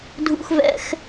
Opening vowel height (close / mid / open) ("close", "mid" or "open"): close